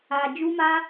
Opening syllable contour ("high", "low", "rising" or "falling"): low